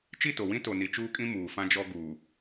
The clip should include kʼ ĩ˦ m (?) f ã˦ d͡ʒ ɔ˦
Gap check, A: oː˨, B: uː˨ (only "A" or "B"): B